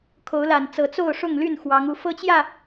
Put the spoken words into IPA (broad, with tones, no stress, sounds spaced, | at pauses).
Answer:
kʰ o˨˦ ʊ̯ l a˨˩ n t͡s ɤ˨˦ t͡s o˥˨ ʊ̯ ʂ ʊ˥˨ ŋ l y˥˨ n x w ɑ˨˦ ŋ u˨˦ f ɤ˦ t͡ɕ j ä˥˨